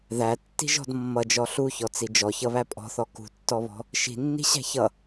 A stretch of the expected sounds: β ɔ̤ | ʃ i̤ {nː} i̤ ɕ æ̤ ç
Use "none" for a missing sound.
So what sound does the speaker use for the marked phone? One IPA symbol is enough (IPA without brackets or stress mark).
nː